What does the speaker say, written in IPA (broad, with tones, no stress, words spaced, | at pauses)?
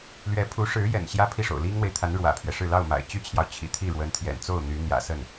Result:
lɥɛ˧˥pʰu˧˥ʂɻ̩˧˥ jɛ̰˨˩n ɕjä˥pʰi˥˩ʂo̰˨˩ʊ̯ li˥ŋn̪we˨ɪ̯t̪ʰa˧˥n ɻwä̰˨˩pʰɥɛ˦ʂɻ̩˥˧ lɑ˥˩ʊ̯ma̰˨˩ɪ̯t͡ɕy˥t͡ɕʰjɑ˨ʊ̯ t͡ɕʰḭ˨˩ t̪ʰi˥˩ɻwə˧˥nt̪ʰjɛ̰˨˩nt͡so˥˩ʊ̯ n̪y˧˥n̪jä̰˨˩sə˥˩n